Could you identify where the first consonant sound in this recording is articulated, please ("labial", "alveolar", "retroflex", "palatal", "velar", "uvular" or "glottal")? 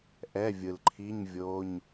glottal